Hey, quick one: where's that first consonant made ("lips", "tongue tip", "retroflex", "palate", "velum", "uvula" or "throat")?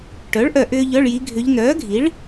retroflex